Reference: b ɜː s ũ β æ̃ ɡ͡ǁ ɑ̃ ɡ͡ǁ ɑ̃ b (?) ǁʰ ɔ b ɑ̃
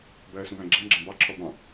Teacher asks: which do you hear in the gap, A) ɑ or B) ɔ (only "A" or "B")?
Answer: A